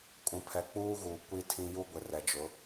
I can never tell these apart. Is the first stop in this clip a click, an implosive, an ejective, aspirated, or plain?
ejective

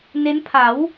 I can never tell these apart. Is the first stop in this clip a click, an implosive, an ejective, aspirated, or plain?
aspirated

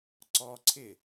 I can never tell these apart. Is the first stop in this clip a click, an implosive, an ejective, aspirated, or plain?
click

